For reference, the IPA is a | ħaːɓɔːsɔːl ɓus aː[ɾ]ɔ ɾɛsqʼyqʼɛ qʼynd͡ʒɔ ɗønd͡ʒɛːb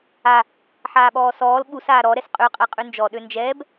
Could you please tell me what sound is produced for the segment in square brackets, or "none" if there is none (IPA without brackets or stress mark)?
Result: ɾ